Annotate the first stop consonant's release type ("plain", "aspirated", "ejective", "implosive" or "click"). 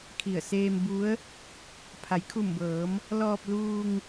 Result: aspirated